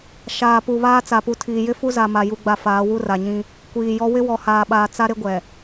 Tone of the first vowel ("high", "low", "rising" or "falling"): low